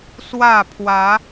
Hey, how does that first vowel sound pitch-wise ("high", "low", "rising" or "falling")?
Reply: falling